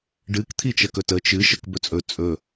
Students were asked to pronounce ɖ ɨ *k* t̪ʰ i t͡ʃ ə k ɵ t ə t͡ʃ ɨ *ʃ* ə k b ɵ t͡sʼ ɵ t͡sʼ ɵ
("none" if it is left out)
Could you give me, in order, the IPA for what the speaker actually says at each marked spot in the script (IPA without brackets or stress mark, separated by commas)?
k, ʃ